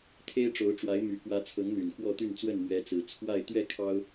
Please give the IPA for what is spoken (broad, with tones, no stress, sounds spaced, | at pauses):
t̪ʰ e˦ ɪ̯ ʈ͡ʂ o˨˦ ʊ̯ ʈ͡ʂ w a˨˦ ɪ̯ m y˨˩ k w ä˨˦ t͡sʰ ɤ˨˦ ŋ n̪ y˨˩ n k w ɔ˥˨ t̪ y˥˨ n t͡s w ə˥˨ n m ɥ ɛ˨˦ t͡s ɹ̩˨˩ t͡sʰ w a˥˨ ɪ̯ t̪ ɥ ɛ˥˨ kʰ ɑ˦ ʊ̯